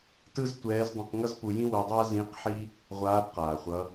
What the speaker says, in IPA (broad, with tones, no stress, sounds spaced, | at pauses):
t ɯ˥ z tʷ ɛː˧˥ z dˤ ĩ˧ q ŋ ʌ˥ z p u˧ j ĩ˥ w o˧ dˤ a˥ z ĩ˧˥ q ħ i˥ | ʁʷ aː˧˥ b q aː˩ χʷ ʌ˩˧